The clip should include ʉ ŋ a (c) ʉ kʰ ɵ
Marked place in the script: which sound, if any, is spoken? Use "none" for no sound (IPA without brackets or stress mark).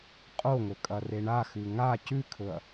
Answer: c